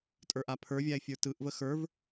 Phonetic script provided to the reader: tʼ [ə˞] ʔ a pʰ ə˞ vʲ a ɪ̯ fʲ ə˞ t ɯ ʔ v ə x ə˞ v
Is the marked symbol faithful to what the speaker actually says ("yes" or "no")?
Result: yes